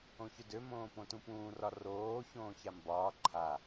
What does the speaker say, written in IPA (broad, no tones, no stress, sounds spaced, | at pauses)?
õ ç ø d ø m õː p õ t ũ p ũː r ɒ r oː ç õː ç a m b ɒː ǃʰ a